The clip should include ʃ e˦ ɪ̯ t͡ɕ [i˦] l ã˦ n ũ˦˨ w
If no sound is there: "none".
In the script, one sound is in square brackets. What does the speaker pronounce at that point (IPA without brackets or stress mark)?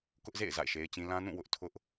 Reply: ĩ˦